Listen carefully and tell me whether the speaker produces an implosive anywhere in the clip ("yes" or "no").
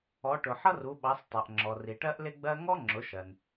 yes